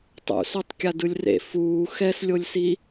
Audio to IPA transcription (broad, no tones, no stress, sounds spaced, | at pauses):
tˤ ṵ s o tˤ kʲ a d ɯ lʲ r ḛ f uː x ɛ s lʲ o lʲ s i